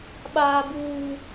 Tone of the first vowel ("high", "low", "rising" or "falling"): low